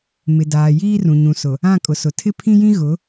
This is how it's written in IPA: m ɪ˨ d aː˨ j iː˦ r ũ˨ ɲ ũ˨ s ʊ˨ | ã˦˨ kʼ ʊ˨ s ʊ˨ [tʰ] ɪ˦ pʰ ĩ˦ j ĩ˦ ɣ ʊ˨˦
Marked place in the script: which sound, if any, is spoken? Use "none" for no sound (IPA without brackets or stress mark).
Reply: tʰ